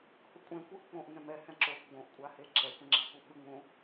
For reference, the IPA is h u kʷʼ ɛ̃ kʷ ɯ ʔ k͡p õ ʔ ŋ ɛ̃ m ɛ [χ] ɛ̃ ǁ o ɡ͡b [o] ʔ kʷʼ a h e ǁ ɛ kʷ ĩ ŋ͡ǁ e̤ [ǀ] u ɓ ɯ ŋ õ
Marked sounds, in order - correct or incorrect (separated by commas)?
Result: incorrect, incorrect, incorrect